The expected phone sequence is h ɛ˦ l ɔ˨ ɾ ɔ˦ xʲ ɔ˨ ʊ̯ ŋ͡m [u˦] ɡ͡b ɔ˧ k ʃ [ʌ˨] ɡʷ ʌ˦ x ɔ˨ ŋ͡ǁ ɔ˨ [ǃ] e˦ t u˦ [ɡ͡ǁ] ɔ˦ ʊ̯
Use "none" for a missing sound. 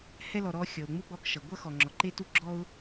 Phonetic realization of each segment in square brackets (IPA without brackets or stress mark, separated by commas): u˦, ʌ˨, ǃ, ɡ͡ǁ